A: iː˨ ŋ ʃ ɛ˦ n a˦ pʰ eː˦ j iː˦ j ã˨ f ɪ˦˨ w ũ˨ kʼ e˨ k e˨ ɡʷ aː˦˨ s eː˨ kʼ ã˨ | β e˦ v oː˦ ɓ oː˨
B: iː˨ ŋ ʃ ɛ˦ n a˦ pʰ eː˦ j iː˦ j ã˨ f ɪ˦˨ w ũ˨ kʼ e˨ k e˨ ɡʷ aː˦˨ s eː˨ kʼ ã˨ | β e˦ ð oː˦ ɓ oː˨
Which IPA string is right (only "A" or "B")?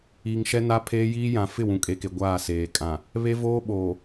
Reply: A